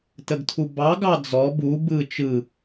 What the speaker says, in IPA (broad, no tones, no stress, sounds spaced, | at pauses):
t ə ɡ tʰ u b ɑ ɡ ɑ d͡z ɔ b u b ɯ t͡ʃ ɯ